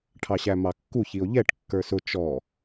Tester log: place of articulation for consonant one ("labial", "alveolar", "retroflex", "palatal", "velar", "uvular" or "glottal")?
retroflex